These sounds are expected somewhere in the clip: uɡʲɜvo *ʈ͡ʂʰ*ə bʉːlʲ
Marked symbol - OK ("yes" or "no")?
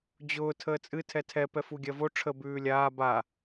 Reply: yes